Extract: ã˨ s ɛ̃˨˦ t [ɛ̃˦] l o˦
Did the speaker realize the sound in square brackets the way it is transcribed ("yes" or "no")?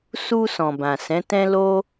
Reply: yes